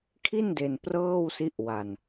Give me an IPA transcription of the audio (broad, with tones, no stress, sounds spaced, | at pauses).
kʰ i˥˩ n d e˧ n p r ɤː˥˩ w s i˦˥ ʔ w a˧ n